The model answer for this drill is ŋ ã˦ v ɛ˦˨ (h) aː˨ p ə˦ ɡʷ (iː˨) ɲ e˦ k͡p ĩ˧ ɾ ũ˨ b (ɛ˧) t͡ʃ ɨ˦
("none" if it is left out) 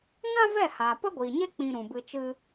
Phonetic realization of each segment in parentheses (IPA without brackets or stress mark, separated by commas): h, iː˨, ɨ˧